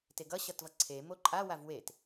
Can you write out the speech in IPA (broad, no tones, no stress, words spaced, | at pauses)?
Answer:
teɡʌ ɕʌtvʌǀʰe moǃʼa wavwet